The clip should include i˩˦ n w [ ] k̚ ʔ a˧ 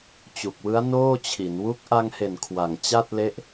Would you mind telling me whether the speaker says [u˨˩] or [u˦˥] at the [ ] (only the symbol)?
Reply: u˦˥